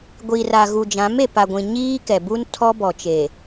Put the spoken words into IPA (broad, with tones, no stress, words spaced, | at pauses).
ɡʷiː˨ra˨ɣu˨d͡ʒã˨˦m e˨pa˨ɡʷĩ˨ ɲiː˦kɛ˨bu˦n tʰɔ˦bɔ˨t͡ʃe˨